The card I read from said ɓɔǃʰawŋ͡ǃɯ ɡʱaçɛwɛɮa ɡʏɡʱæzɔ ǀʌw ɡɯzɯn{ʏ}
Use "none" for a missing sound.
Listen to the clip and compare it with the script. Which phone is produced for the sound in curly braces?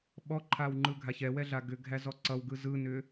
ʏ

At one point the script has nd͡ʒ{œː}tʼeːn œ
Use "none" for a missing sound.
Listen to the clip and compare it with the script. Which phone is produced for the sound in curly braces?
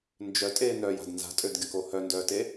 œ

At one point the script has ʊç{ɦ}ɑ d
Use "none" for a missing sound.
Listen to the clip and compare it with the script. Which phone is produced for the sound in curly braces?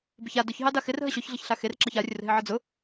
ɦ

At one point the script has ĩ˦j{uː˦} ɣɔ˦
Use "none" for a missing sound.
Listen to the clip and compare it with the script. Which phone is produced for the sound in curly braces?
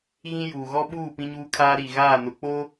uː˨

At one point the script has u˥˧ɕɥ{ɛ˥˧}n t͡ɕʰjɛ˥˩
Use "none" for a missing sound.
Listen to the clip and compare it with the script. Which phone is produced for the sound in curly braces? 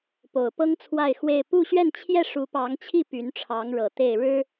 ɛ˥˧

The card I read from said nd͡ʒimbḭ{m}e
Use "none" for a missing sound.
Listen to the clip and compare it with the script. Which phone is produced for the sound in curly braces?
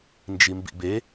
b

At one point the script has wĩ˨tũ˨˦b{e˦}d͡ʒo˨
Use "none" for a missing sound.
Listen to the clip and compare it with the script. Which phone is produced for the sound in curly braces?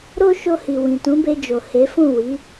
e˧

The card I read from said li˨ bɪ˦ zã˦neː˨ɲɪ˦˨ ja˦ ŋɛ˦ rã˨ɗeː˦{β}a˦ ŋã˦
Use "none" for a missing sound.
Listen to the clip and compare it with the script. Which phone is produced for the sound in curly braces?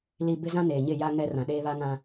β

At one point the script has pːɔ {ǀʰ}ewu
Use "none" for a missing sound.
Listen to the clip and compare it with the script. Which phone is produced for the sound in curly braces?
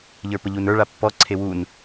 ǀʰ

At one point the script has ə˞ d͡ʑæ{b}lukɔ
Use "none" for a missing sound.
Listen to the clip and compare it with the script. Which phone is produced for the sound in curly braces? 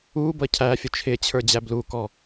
b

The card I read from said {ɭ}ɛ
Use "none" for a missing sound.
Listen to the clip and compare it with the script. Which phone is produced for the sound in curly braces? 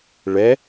ɭ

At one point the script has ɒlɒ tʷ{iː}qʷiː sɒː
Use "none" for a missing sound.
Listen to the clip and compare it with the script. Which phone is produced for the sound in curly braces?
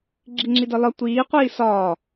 iː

